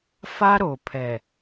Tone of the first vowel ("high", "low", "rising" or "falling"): high